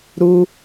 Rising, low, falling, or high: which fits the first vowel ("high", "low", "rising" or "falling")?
low